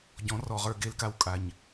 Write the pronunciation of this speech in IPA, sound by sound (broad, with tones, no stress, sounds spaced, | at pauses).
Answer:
ɟ ɔ̃˨˦ r ɔ˨ ʁ ə˞˧ ɡ e˧ l k a˧ w kʼ a˨ ɲ